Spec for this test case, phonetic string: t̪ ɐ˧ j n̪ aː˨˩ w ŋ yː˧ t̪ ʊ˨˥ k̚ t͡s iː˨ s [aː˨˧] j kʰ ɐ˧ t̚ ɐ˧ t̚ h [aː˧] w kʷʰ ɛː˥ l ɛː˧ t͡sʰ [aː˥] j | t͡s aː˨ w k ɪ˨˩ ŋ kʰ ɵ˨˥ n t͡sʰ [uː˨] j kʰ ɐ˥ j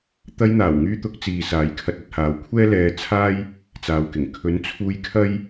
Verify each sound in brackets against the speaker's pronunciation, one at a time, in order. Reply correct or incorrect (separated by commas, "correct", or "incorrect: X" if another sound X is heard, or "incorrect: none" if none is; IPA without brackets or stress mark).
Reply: correct, incorrect: aː˨˧, correct, incorrect: uː˧